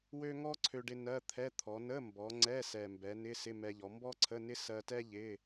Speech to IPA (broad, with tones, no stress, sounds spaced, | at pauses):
w ø˥ ŋ ɔ˥ ǀʰ ø˧ ɖ ɪ˧ n ɜ˧˥˧ t̪ʰ ɛ˧˥˧ t̪ʰ ɔ˩˧ n ə˧˥˧ m b ɔ˩˧ ŋ͡ǀ ɛ˧˥˧ s ɛ˨˩ m b ɛ˩˧ n ɪ˧˥˧ s ɪ˧˥˧ m ɛ˧ ʎ ɔ˩˧ m b ɔ˥ ǀʰ ə˧˥˧ n ɪ˥ s ɜ˧ t ɛ˥ ʎ ɪ˧˥˧